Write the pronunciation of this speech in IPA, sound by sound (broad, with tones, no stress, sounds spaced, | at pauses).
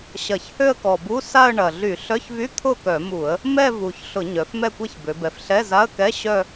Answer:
ɕ ɐ˧˩˧ ç h ø˥˧ ə̯ k ɔ˨˩ b u˧˥˧ s a˥˧ ə̯ ɳ ɐ˨˩ ɮ y˧˩˧ ɬ œ˧˥˧ ç v y˧˥˧ t̪ʰ ʊ˥˩ k œ˧˩˧ m u˧˩˧ ə̯ | m ɛ˥˧ v u˨˩ ç ɬ ʊ˧˩˧ ɲ œ˩˧ f m ɛ˥˩ kʷ ɛ˥˩ ç b ø˩˧ b ɛ˨˩ f ɬ ɛ˧˥˧ z a˧˥˧ ə̯ k ɛ˧˥˧ ɕ œ˥˧